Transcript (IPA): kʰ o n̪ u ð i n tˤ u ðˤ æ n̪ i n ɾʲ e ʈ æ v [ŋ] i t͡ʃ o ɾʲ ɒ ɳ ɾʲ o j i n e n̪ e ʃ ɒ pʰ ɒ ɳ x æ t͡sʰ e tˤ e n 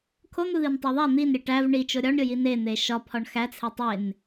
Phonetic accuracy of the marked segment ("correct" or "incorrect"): incorrect